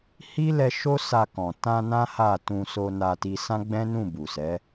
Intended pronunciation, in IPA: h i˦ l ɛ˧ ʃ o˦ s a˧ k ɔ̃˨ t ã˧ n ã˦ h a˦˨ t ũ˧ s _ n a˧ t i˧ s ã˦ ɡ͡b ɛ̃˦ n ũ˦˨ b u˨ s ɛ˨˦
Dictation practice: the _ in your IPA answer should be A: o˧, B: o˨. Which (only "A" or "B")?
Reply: A